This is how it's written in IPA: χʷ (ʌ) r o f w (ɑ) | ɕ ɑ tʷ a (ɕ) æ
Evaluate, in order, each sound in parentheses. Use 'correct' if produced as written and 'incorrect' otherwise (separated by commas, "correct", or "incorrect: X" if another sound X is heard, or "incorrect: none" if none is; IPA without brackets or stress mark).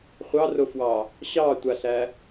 incorrect: ɑ, correct, incorrect: ɬ